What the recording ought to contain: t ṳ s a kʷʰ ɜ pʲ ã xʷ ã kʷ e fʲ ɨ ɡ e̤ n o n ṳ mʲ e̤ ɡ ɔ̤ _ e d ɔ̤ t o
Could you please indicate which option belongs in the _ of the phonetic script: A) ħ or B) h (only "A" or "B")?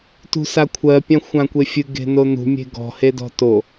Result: B